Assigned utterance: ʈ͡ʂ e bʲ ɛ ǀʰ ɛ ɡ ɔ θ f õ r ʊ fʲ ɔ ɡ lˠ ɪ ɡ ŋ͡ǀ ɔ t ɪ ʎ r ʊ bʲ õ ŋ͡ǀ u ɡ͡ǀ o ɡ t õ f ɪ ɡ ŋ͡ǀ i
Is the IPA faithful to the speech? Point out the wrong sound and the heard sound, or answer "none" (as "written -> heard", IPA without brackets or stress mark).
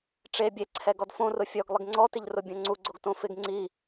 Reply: θ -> d